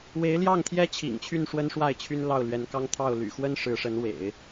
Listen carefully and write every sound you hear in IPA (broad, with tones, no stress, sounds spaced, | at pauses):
w e˧˥ ɪ̯ l j ɑ˥˩ ŋ t̪ʰ j ɛ˥ t͡ɕʰ ḭ˨˩ ŋ t͡ɕʰ y˥˩ n ʂ w ə˥ n ʂ w a˥˩ ɪ̯ t͡ɕʰ y˥ n l ɑ˥˩ ʊ̯ l ɥ ɛ˧˥ n k ɑ˥ ŋ t̪ʰ ɑ˥˩ ʊ̯ l y̰˨˩ x w ə˥ n ʂ ɻ̩˧˥ ʂ ə˧˥ n w ḛ˨˩˦ ɪ̯